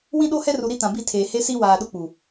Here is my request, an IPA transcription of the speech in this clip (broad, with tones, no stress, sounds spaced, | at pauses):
w ĩ˦ ɗ o˦ h ɛ˦ r u˨ ɾ i˦ t ã˨ b i˦˨ tʰ eː˨ h e˦ s i˦ w aː˨ ɗ ʊ˦ k͡p u˨